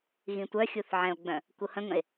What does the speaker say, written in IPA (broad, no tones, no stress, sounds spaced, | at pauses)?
ɣ ĩ tʷ œ xʲ u θ ʕ ɛ̃ o̯ ɡ͡b œ̃ | k u h ə̃ ŋ ə̃ e̯